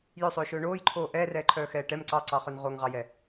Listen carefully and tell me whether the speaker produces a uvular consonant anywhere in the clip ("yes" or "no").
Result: yes